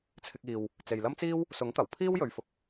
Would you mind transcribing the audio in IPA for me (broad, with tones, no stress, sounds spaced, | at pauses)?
t͡sʰ ɪ˧ k̚ iː˨ w | t͡s e˨ j l ɐ˥ m t͡s iː˥ w | s ʊ˨˥ ŋ t̪ ɐ˨˩ w pʰ iː˥ w j ɵ˨˧ ɥ f ʊ˨ k̚